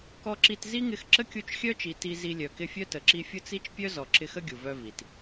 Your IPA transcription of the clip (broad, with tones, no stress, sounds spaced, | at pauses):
k ɔ˧ ǁ i˧ t z i˦ ŋ ɪ˧ x ǁ ə˦ kʲ u˧ t͡ʃ xʲ œ˦ t͡ʃ i˨ t i˧ z i˧ lʲ œ˨ k ɪ˧ fʲ œ˦ t ə˨ ǁ i˧ fʲ ʊ˦ t͡s i˦ t͡ʃ pʲ œ˦ z ɔ˨ ǁ ɪ˧ x ə˦ ɡʲ u˨ v œ˧ v i˨ t